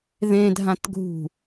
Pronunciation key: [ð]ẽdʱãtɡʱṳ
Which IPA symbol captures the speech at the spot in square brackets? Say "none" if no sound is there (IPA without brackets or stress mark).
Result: ð